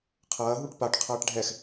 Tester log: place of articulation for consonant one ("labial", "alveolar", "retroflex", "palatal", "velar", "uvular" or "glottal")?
uvular